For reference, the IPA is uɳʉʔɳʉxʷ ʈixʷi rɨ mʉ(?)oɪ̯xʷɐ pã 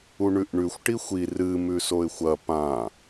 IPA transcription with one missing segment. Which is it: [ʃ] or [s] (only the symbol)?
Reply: s